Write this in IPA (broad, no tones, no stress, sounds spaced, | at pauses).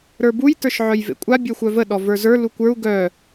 ɾ ə˞ b u j t ə˞ ʃ ʕ œ j v ḛ kʷʼ a bʲ œ xʷ œ v ə ɗ ɔ v ə˞ z ə˞ l u kʷ ə˞ u̯ ɡ œ